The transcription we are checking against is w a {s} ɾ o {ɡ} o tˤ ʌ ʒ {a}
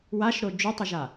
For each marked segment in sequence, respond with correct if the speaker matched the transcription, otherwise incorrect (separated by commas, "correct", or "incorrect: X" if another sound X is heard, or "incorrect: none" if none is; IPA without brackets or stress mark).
incorrect: ʃ, incorrect: d͡ʒ, correct